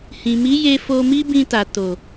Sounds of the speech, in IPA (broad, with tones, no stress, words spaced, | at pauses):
hĩ˨mi˨˦je˧ fo˧mi˦bĩ˧ta˨ to˨